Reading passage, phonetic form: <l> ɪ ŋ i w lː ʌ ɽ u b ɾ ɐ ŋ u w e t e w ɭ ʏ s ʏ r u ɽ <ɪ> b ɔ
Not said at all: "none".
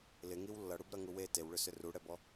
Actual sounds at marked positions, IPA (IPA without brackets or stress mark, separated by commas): l, ɛ